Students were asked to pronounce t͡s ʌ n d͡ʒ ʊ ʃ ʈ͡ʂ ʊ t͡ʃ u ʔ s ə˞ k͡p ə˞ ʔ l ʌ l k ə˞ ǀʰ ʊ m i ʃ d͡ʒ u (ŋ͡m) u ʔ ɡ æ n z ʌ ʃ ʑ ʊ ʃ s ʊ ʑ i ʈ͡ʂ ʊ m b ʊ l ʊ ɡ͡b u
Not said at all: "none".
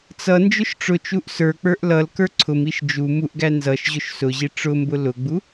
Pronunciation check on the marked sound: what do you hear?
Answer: m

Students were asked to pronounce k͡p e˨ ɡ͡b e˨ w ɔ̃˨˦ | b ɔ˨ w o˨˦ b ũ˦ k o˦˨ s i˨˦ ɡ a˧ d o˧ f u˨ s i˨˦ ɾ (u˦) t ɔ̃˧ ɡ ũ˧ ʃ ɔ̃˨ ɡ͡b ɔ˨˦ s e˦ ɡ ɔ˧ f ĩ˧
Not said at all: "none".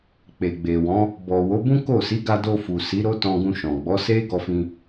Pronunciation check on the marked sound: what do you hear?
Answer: o˦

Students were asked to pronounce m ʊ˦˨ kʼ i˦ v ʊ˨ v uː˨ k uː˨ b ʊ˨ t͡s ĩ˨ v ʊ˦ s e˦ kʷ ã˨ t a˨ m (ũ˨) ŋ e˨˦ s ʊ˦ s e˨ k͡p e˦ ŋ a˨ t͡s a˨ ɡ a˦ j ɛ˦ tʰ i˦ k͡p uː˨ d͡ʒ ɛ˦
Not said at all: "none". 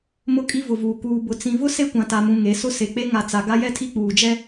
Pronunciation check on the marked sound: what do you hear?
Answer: ũ˨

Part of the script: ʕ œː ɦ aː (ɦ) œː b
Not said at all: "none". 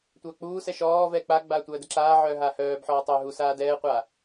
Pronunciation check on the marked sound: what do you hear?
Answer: h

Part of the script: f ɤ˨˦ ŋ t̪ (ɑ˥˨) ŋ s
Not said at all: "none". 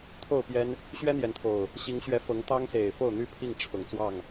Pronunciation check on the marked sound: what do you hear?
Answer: ɑ˦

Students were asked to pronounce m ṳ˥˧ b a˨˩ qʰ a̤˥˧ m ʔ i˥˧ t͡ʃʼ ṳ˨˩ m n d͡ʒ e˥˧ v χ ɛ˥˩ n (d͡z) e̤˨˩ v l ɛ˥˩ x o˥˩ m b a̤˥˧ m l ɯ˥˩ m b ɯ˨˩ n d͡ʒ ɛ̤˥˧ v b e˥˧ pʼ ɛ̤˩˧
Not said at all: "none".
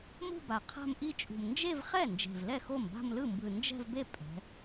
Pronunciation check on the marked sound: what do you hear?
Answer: d͡ʒ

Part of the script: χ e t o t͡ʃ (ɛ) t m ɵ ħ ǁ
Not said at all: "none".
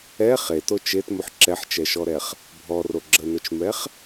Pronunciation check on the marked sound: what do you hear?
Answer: e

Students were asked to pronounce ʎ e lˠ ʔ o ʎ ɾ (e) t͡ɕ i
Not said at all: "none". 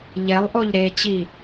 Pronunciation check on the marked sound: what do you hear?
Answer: e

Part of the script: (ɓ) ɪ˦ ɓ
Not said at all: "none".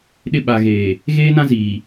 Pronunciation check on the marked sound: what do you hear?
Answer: ɗ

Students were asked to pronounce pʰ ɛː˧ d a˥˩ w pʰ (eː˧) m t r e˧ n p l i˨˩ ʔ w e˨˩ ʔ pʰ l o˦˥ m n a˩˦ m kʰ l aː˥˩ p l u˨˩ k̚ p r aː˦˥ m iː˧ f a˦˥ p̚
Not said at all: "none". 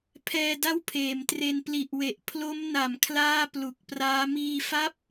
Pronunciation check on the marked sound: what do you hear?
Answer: eː˩˦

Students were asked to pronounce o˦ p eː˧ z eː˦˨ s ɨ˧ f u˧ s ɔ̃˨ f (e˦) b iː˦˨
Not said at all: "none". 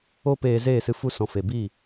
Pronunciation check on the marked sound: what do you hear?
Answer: e˨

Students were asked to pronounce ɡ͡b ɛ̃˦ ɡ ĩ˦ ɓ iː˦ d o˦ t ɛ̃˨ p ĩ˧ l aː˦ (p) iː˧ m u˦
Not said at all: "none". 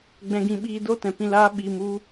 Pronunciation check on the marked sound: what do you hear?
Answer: ɓ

